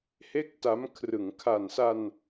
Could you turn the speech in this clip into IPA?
he˥˩k̚ta˦˥m kʰrɯ˩˦ŋkʰa˨˩nsa˧n

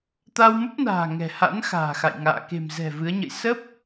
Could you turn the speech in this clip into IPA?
t̪a˧wmə˦˥p̚na̤ː˨˩ ŋɛ̤˨˩ha̰˧˥n xa̤ː˨˩xa̰˧˨jŋa̰ː˧˨ ke̤˨˩m zɛ̤˨˩ vɨ˨˦ə̯ɲə̰˧˨j sə˦˥p̚

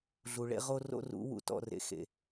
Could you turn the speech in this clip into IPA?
ɮu˨ɭḛ˦ ʁo˦ro̰˦ rṵ˨˦wṵ˨ tɔ̰˦rḛ˨xḛ˨

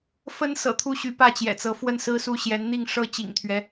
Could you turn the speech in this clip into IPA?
fə˥nsɤ̰˨˩t̪ʰu˥˩ɕy˧˥ pä˥˩t͡ɕjɛ̰˨˩t͡sɤ˧˥ fwə˥˧nsɹ̩˥˧su˥˩ ɕjɛ˧˥nn̪i˥˩ŋ ʂɤ˥ t͡ɕḭ˨˩ŋt̪ʰɥɛ˦

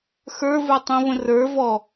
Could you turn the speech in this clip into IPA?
xə˞və˞tˤĩvə̃ rə˞ vɔ

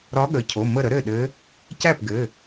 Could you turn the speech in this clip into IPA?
ɾɒ˧˥ɠə˩˧˩ cʰo˩˧˩ mə˥˩ɾə˧˥ ɾɘ˥˩ɗɘ˧˥ | cæ˥˩pɡɘ˩˧˩

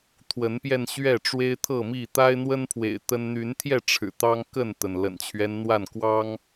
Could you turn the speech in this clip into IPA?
t̪ʰwə˨˦npjɛ˧n ɕɥɛ˥˨ ʈ͡ʂwe˦ɪ̯t̪ʰɤ˥˨mi˥˨ t̪a˦ɪ̯n̪wə˦npʰwḛ˨˩ɪ̯ t̪ə˦n n̪y˨˦nt̪ʰjɛ˥˨ʈ͡ʂʰɻ̩˨˩ t̪ɑ˦ŋkə˥˨nt̪ə˩n lə̰˨˩nt͡ɕʰɥɛ˦nn̪wa˥˨n kwɑ˦ŋ

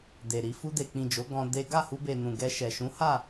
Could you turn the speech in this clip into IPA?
de˨ɾi˧ fu˧de˨k͡pĩ˨ d͡ʒo˨˦ ɡɔ̃˧ de˦ ɡa˦˨hu˧be˨ nũ˨ɡɛ˧ ʃɛ˨ ʃũ˨˦ha˦˨

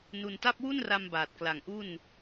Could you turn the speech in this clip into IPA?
nu˧nta˥˩p̚ wu˥˩nra˧m baː˨˩t̚kla˨˩ŋʔu˥˩n

